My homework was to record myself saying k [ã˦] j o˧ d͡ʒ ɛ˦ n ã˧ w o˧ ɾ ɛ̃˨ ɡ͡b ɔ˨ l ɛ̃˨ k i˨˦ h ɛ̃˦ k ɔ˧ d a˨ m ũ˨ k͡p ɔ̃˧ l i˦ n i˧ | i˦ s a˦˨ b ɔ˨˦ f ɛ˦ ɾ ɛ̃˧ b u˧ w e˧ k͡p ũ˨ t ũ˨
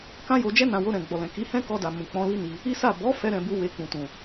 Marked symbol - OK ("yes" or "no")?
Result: yes